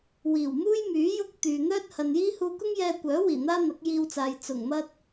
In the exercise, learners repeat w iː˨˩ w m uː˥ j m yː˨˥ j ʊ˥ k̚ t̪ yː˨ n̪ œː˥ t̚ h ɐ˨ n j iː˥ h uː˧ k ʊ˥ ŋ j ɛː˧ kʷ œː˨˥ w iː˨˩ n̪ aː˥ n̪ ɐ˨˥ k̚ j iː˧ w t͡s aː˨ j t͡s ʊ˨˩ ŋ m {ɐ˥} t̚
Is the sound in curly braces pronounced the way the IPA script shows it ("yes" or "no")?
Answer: yes